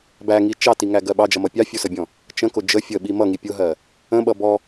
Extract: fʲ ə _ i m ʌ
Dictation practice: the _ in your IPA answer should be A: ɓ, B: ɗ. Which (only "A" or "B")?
A